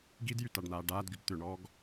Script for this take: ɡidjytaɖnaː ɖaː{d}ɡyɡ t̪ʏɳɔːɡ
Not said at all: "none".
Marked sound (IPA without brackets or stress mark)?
d